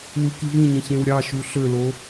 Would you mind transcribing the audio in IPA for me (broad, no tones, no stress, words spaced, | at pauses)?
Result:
wɯkivĩɲẽç ẽwɾʲɑʃu ɬølo